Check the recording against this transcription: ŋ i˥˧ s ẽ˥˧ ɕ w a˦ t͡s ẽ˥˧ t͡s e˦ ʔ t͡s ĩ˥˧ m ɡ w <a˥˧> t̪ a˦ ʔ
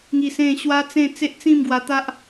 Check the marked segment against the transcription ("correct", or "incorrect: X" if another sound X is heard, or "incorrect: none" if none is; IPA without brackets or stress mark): incorrect: a˧